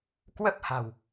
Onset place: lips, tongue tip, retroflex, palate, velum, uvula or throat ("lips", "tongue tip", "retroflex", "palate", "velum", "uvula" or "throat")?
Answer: velum